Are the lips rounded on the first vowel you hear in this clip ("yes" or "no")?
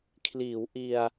no